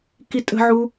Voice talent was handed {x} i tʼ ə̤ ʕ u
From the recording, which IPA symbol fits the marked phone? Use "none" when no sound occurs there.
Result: k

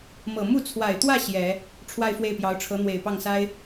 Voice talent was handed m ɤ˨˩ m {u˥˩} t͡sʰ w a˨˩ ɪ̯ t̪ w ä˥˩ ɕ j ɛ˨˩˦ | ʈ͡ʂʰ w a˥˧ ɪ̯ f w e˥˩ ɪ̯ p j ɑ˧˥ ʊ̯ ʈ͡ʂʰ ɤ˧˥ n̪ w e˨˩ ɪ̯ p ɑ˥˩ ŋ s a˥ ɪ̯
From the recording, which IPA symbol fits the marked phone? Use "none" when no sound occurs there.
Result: u˥˩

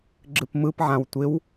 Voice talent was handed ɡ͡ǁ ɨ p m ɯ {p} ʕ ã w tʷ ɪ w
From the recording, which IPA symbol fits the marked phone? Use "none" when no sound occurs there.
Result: p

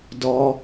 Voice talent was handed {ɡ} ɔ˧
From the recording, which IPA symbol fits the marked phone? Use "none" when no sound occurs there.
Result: d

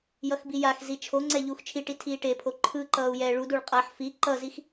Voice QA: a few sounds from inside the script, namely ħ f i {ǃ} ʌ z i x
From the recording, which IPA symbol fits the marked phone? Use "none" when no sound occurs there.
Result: ǃ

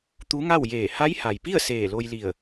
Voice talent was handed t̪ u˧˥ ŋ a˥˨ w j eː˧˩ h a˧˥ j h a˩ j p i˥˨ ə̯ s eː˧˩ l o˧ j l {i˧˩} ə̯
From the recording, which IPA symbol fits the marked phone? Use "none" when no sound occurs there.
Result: i˧˩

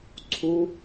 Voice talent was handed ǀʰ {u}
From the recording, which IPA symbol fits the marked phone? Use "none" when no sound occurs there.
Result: u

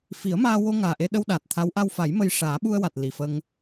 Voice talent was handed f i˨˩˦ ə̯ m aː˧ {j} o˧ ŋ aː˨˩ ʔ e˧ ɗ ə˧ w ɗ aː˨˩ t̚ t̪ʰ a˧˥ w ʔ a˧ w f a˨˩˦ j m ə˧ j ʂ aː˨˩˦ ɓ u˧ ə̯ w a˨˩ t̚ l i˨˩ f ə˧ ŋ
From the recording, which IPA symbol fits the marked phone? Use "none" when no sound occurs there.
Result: w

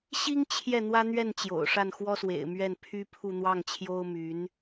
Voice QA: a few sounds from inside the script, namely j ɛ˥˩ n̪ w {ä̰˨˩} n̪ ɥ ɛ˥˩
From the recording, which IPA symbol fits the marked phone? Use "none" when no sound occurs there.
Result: ä˥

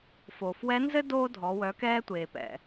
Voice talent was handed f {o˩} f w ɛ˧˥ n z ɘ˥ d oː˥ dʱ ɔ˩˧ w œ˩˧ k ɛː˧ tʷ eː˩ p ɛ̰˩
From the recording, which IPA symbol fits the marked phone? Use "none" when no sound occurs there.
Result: oː˩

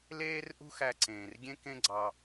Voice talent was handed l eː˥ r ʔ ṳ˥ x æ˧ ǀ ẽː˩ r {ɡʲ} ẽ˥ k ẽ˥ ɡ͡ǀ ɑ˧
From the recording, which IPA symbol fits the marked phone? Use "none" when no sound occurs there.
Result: ɡʲ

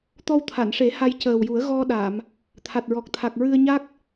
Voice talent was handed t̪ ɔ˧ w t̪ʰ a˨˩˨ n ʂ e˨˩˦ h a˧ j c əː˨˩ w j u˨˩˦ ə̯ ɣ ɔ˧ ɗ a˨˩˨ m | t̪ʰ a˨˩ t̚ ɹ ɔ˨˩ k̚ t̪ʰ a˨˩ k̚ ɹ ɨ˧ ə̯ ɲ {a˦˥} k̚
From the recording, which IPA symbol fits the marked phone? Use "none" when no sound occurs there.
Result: a˦˥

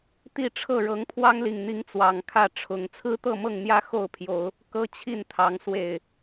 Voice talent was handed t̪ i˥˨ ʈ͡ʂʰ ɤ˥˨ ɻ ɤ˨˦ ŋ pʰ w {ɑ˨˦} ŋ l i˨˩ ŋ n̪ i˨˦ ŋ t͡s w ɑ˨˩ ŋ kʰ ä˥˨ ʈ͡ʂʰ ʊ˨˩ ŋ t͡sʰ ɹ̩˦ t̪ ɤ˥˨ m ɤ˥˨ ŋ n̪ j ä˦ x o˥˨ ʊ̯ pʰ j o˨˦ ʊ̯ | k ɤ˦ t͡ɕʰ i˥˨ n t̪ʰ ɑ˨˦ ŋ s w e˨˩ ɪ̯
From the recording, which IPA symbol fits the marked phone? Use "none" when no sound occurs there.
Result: ɑ˦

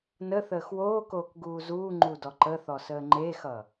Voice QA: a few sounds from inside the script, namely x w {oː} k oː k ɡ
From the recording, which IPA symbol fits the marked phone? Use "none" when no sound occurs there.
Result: oː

